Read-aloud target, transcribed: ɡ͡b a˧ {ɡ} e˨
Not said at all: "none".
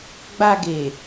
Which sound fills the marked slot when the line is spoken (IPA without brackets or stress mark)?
ɡ